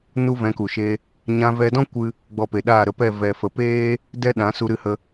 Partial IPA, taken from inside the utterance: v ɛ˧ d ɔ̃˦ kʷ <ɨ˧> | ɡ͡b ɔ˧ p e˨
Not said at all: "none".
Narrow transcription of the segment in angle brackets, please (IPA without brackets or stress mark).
ɨ˦